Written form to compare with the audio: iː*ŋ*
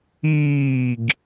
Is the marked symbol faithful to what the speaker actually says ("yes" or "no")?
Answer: no